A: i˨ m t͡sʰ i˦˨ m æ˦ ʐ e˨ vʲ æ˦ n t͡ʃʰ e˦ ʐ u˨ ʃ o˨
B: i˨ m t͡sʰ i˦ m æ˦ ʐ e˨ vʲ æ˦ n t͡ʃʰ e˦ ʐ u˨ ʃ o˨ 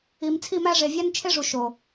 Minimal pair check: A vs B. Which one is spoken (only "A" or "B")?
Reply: A